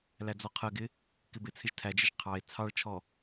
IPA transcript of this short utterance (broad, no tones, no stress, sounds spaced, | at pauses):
l æ d͡z ɔ qʰ ɜ ɡ ɪ | k ɪ b ɪ t͡sʰ ɪ ʒ tʰ æ d͡ʒ ɪ ʒ qʰ ɑ e̯ t͡sʰ ɑ ɭ t͡ʃʰ ɔ